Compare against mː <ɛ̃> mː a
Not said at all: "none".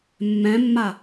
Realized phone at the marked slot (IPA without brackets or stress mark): ɛ̃